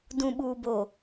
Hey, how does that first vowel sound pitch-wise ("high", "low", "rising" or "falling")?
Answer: low